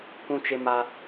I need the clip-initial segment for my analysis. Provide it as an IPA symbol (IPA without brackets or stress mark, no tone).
kʷ